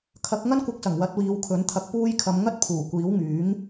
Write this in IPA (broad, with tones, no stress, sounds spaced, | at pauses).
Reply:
kʰ ɐ˨˥ k̚ ŋ ɐ˥ n kʷ ɐ˧ k̚ s ɐ˨˩ ŋ w ɐ˨˥ t̚ w iː˨˧ w kʰ ɵ˨˥ n t̪ʰ ɐ˧ k̚ p uː˧ j kʰ ɐ˨˧ m ŋ ɐ˥ t̚ pʰ uː˨˩ kʷ iː˨˥ w ŋ yː˨˥ ŋ